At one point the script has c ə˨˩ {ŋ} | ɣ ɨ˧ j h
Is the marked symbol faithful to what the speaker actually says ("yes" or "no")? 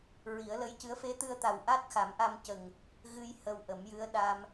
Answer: yes